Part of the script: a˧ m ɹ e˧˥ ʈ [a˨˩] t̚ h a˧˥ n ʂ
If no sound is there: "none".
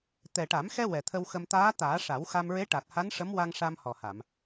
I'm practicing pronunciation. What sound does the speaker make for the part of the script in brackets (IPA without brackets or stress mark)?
a˨˩